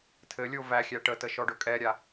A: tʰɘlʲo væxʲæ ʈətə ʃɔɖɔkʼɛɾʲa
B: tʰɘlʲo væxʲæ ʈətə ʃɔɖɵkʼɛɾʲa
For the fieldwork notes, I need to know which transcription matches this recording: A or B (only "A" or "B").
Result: B